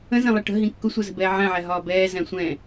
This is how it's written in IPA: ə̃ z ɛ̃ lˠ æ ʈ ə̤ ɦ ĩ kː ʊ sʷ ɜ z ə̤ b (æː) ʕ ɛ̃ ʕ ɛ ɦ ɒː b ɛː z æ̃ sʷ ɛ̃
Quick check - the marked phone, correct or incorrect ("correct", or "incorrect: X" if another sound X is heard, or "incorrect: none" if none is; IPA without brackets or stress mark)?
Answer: incorrect: ɛː